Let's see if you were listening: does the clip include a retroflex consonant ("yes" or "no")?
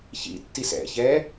no